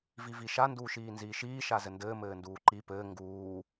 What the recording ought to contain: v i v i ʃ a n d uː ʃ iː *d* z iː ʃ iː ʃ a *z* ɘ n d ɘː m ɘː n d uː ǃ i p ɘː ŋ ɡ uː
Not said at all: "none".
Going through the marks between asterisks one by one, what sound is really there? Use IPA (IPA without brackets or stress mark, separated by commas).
n, z